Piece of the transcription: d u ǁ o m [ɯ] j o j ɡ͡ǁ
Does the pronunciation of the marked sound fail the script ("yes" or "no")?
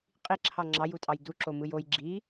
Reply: no